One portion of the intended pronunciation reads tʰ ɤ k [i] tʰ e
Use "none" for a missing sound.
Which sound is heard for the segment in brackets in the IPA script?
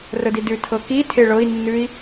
i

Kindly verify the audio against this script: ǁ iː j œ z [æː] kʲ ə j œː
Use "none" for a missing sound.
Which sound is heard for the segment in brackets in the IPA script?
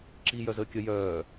əː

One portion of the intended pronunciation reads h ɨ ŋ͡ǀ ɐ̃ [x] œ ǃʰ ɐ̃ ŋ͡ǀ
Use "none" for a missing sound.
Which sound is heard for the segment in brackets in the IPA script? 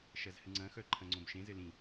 x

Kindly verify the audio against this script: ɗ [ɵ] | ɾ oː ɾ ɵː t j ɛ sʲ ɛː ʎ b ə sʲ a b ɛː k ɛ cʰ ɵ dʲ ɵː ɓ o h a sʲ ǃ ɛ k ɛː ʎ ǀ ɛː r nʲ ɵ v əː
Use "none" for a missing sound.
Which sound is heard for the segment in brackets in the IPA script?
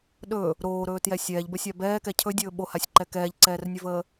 ɵ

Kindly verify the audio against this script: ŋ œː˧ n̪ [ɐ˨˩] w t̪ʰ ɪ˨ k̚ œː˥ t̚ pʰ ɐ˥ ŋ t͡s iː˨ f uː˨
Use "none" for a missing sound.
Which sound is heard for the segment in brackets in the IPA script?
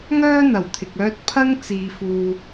ɐ˨˩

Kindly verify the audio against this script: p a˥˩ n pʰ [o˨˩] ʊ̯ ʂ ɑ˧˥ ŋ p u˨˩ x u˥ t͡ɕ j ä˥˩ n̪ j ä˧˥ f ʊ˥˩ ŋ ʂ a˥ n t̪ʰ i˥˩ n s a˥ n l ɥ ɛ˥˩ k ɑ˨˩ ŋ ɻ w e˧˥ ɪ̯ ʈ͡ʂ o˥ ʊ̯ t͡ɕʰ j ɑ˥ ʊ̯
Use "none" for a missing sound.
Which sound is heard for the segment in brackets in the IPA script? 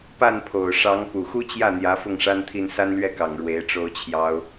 o˨˩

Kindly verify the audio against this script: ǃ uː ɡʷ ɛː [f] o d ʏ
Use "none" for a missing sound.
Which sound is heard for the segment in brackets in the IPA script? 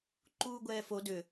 f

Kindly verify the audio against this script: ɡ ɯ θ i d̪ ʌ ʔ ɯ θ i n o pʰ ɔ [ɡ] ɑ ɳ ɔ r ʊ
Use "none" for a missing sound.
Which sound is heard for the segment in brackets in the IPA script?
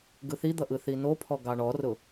ɡ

